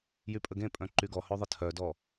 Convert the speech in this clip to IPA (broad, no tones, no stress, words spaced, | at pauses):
jypʼəɡẽpʼœ̃ ǃyɡɔhø ðˤətʰœdɔ